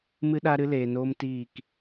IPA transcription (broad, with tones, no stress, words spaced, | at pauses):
mɨ˦ɗa˦ɾɨ˦ leː˨noː˧m tiː˦˨k